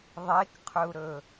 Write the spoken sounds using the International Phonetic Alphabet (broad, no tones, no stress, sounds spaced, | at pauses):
ðˤ e k qʰ ɵ u̯ ɾ ɵ